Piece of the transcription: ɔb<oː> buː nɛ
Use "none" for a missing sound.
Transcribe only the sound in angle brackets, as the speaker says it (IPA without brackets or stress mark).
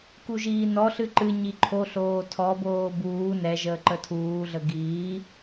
oː